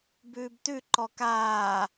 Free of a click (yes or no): no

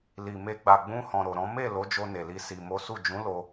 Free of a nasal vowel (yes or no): no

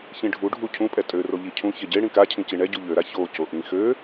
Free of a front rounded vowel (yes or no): no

